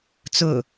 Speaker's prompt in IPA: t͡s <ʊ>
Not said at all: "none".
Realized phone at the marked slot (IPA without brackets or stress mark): ʊ